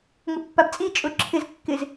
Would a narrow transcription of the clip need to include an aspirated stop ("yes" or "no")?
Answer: yes